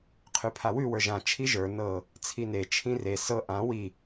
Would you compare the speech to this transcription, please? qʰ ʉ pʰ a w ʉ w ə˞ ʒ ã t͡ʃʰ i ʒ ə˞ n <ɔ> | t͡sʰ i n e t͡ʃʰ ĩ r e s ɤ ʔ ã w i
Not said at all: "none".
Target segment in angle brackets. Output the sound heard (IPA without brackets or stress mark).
ɤ